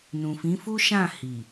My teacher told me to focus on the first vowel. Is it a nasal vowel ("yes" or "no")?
yes